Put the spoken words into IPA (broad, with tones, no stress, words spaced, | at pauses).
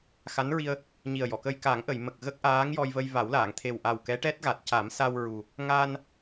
xa˧˥nɹi˧ə̯ | ɲi˨˩ə̯jɔ˨˩˨kə˧j ka˨˩˦ŋʔə˨˩˨jmə˨˩k̚ ɣə˦˥k̚ʔaː˧˥ŋjɔ˧j və˧jva˨˩˦wlaː˨˩˨ŋ t̪ʰe˨˩wʔa˨˩w kɛ˧˥ʈɛ˦˥t̚ɣa˨˩t̚ ca˨˩˦msa˧w ɹu˨˩ | ŋa˧n